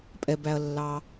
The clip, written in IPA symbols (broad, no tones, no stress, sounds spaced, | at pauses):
pʼ ɛ b æ ɐ̯ lː ɑ